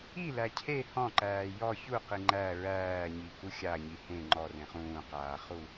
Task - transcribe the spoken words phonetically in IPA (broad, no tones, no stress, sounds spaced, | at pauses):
i l æ cʰ e h ɔ̃ ǃ æː j ɔ ç u q i ŋ͡ǃ æ ɹ æː ɲ i k u xʲ a ɲ i h ẽ ŋ͡ǃ ɔ r ẽ χ ũː q aː χ u